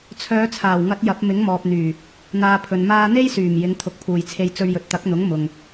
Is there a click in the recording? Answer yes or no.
no